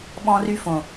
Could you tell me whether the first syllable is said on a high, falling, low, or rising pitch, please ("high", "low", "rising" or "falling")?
high